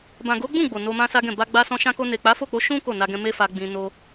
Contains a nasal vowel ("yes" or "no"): yes